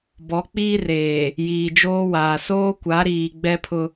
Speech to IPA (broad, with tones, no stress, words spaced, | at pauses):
bɔ˨˦k͡piː˦reː˨ | jiː˨d͡ʒoː˦waː˨ soː˦kʷa˨˦ɾiː˨ ɡ͡bɛ˦pʰʊ˦